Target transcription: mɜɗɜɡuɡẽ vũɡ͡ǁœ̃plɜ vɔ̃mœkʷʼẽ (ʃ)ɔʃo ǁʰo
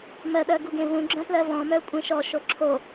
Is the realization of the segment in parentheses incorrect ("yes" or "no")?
no